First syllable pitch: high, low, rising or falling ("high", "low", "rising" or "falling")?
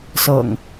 low